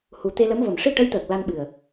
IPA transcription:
hu˨˩t̪e˧lə˧˥mvə˨˩m ʂi˧ ʈə˧˥jt̪əː˨˩k̚ la˧nɓɨ˨˩ə̯

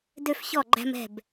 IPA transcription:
dø˧f çɔ˧˩ ɡ͡ǃæ̤˧m ɛ̤˧˩b

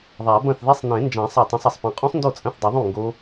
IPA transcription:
ðˤa˨˩˦bɐ̃˥˩θðe˦˥sˤ nẽ˨˩˦nd͡ʒã˨˩˦ sˤa˥˩tˤẽ˦˥sˤɐ˨˩˦sˤpẽ˦˥ qʼũ˦˥sˤndo˥˩t͡sʼɐ̃˥˩θ dˤɨ˨˩˦ðˤũ˥˩ ŋɡo˦˥

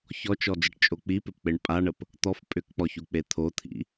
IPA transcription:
çɔt͡ʃɔd͡zəʈt͡ʃʼo k͡pipɪpk͡peɳ pʼaɳəp | t̪ɔf pʼʏkk͡pɔçuk͡pe t̪ʰot̪ʰḭ

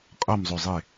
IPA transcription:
qʼʌmzˤozˤe

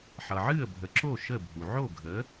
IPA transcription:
ħʌ˩ʕɨ˥˩ə̯ bʱə˩˥ǁo˥˩ ʃə˥˩bʱu˩ ʕo˥˩ɡʱə˩˥

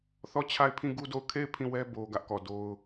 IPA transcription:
θɔ˦˨t͡ɕʰa˦˨ɪ̯pʰĩ˦˨ ɡu˦do˦˨ʊ̯ kʰe˦˨ɪ̯ pʰĩ˦˨wɛ˦ bo˦ ɡä˦ʔkɔ˨ do˦ʊ̯

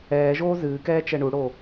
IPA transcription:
ɛːʒoː zɨːkɛː t͡ʃɛɳuɽo

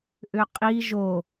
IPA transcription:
ʔʏqʼi ʒo

